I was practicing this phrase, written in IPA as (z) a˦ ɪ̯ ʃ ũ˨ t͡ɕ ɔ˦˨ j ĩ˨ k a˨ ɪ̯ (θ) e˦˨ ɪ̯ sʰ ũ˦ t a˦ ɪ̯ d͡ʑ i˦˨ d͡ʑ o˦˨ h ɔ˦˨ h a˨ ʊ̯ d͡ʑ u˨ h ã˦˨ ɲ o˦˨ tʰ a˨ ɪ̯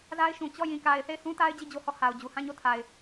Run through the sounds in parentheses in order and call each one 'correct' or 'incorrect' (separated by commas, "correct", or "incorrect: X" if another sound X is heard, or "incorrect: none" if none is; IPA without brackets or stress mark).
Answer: correct, correct